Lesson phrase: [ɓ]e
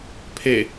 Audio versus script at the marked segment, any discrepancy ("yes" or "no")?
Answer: yes